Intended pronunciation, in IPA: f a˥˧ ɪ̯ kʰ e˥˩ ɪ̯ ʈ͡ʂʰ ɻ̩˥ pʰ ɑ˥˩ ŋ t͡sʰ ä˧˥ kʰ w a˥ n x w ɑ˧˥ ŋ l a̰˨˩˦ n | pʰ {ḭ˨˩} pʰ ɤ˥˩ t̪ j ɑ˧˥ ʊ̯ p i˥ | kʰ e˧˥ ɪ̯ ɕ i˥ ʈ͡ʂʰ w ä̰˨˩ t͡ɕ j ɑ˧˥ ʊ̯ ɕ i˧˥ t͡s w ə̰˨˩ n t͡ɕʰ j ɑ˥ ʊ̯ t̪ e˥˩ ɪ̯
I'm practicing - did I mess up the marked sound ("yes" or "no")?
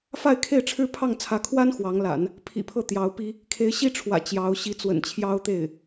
no